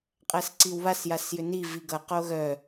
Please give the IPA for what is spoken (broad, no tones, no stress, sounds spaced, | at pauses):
qʼ æ s ǀ i w β a s j a s j ʏ n i v i ɡ ʌ q o ɣ œ